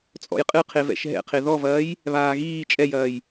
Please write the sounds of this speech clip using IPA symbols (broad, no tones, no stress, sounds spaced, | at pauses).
t͡sʼ ɔ̰ j qʼ ɨ qʰ e v ɛ̰ ʃ ɦ ɛ̰ qʰ e ð ɔ v ɐː j | β aː ɣ iː t͡ʃʼ ɛ j ɐː j